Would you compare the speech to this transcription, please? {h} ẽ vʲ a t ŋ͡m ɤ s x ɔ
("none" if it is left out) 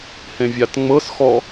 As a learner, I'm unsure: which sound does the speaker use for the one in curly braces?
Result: h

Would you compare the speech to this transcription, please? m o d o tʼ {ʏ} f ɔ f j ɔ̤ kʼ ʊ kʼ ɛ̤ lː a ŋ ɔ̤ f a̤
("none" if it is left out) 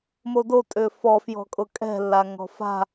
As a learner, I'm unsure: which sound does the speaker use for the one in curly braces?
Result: ʏ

